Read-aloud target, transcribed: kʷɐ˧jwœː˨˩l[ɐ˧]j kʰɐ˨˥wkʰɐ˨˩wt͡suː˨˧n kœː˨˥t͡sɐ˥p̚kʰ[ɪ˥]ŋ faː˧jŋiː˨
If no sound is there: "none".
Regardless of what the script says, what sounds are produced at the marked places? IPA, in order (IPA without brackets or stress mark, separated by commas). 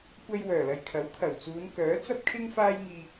ɐ˨, ɪ˥